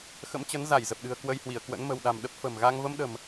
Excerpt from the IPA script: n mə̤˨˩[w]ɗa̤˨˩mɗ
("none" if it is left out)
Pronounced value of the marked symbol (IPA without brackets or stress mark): w